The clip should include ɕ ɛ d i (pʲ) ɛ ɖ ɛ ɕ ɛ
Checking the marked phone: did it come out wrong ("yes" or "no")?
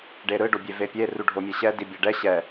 yes